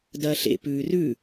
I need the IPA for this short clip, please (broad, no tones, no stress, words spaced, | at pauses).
dɐːɬḛ pʉːrʉ